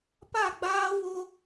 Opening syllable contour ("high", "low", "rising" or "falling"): falling